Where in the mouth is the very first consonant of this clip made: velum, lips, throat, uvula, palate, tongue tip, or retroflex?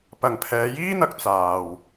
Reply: lips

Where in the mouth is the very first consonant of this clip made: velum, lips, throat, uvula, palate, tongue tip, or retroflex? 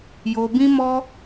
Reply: palate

